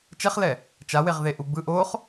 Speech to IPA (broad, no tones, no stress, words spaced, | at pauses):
t͡ʃɛχlɛ | t͡ʃaweʁðe ʔubɯ ʔoχ